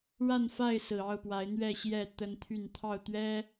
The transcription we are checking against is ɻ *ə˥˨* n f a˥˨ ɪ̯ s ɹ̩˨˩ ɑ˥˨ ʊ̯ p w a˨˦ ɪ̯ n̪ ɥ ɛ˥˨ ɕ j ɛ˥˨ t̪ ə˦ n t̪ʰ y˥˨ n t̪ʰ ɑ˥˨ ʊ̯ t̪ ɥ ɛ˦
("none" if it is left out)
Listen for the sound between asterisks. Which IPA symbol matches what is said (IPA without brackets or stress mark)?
a˥˨